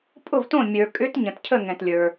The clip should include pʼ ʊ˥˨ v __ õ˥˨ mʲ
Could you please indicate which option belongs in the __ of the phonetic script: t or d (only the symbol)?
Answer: t